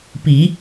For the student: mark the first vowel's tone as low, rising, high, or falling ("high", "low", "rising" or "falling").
rising